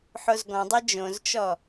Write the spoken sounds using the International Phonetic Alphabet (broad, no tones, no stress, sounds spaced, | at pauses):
ħ o z ɡ ɔ̃ dˤ ɤ d͡ʒ õ z t͡ʃ ɔ